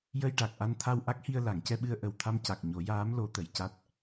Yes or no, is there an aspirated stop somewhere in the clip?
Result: yes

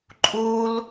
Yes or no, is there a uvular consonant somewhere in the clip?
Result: no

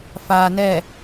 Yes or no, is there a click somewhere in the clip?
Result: no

